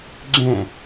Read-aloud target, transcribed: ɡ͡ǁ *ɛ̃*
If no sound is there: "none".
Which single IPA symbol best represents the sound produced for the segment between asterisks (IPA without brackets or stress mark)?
ɛ̃